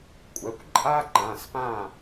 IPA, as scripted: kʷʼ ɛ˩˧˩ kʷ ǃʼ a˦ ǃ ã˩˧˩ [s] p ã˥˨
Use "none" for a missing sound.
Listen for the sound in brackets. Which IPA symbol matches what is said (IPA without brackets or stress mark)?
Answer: s